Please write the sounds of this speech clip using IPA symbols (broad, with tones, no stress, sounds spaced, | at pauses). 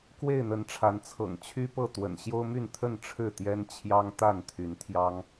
k w e˥˨ ɪ̯ n̪ ə˨˦ n ʈ͡ʂʰ a˨˦ n t͡sʰ ɤ̰˨˩ ŋ t͡ɕʰ y˦ p ɤ˥˨ t̪ w ə̰˨˩ n ɕ j o˦ ʊ̯ m y˥˨ n t̪ʰ ə˥˨ n ʈ͡ʂʰ ɻ̩˥˨ t̪ j ɛ˦ n t͡ɕʰ j ɑ˦ ŋ t̪ a˥˨ n t̪ʰ y˨˦ n t̪ʰ j ɑ˦ ŋ